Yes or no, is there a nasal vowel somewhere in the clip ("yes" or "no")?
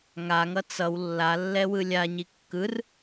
no